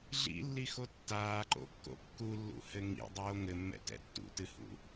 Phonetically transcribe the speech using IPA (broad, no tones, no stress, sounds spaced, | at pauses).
ɮ ḭ lː i x o tː aː ǃ o̰ kː o̰ kː u lː ṵ h ɘ ŋ ḭ dˤ oː ŋ ɘ mː ɛ̰ t ɛ̰ tː ṵ t ɨ h ṵ